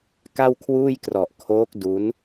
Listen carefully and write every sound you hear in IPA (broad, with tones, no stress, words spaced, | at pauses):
ka˥˩wkʰwuː˥˩jkrɔ˨˩ʔ kʰoː˦˥k̚ du˦˥n